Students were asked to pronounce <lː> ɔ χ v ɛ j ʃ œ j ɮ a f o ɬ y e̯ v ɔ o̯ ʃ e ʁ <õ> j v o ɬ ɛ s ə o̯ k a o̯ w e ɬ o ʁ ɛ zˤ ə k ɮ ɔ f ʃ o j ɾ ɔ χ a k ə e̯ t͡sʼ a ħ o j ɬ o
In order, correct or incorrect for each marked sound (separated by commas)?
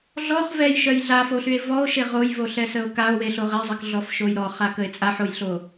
incorrect, incorrect